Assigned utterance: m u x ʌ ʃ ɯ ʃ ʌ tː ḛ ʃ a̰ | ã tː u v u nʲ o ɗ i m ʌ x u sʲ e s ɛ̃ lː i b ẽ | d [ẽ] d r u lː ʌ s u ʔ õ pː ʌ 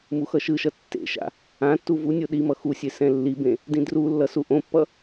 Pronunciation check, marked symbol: incorrect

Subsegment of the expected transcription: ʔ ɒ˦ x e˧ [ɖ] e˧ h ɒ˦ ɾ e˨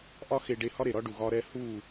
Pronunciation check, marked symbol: correct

